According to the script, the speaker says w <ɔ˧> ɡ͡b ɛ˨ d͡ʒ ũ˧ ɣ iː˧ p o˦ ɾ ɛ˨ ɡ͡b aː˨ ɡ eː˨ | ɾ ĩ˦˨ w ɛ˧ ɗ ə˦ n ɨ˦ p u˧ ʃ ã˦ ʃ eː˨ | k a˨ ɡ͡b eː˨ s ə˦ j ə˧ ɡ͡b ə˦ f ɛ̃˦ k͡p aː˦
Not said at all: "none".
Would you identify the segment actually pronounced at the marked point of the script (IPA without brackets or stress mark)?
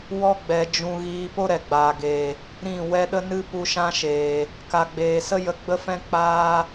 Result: ɔ˧